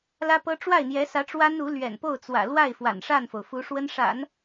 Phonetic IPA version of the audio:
l ä˥ p ɤ˥ ʈ͡ʂ w a˥˩ ɪ̯ n̪ j ɛ˧˥ s ä˧˥ ʈ͡ʂ w a˥ n u˧˥ l ɥ ɛ̰˨˩ n p o˥˩ ʊ̯ t͡s w ä̰˨˩ l w a˥˩ ɪ̯ f w a̰˨˩ n ʂ a˥˩ n f o˩ ʊ̯ f u˧˥ ʂ w ə˥ n ʂ a̰˨˩˦ n

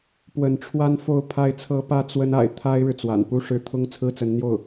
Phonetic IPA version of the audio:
p w ə˧˥ n ʈ͡ʂʰ w a˥ n f o˧˥ ʊ̯ pʰ a˧˥ ɪ̯ t͡sʰ ɤ˧˥ p ä˥ t͡s w ə˥ n a̰˨˩ ɪ̯ t̪ʰ a˥ ɪ̯ ɻ ɻ̩˨ t͡s w a̰˨˩ n p u˥ ʂ ɻ̩˥˩ t̪ʰ ʊ˥ ŋ t͡sʰ ɹ̩˥ t͡s ə˧˥ n n̪ j o˥˩ ʊ̯

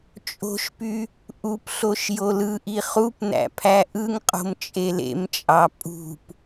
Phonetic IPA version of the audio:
t͡ʃʼ o̤ ʃ p y | ʔ u p ɬ o ʃ j o l ɯ ʔ i χ u p n æ̰ pʰ æ ʔ ɯ ŋ qʼ o̤ m t͡ʃʼ e l ḛ m t͡ʃʼ ɑ pʼ ṳ p

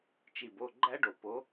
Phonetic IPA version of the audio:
t͡ʃ i˨˩ b o˥˨ ɡ͡ǃ æ˦˥ ɖ o˨˩ p o˨˦

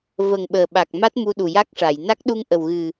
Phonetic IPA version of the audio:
v ə˨˩ ŋ ɓ əː˨˩ ɓ a˨˩ k̚ m a˦˥ t̚ m u˧ ɗ u˨˩ j a˦˥ k̚ ʂ a˨˩˨ j n a˦˥ k̚ ɗ u˧ ŋ ʔ ə˨˩ w ɣ ɨ˨˩

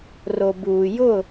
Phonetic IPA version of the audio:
r o˨ b uː˨ j ʊ˦˨

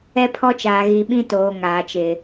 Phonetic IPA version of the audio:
ɛ˦ pʰ ɔ˦ t͡ʃ aː˨ ɣ i˨ ɓ ĩ˦ t oː˨ ŋ aː˨ t͡ʃ ɪ˨

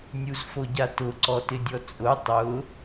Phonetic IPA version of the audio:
nʲ u z f o ɟ a t ʊ ǀ ɔ t ɪ dʲ ɔ t͡sʼ ʊ tˤ ʊ

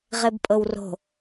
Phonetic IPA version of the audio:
ʁ e b pʼ ɤ w r o̤

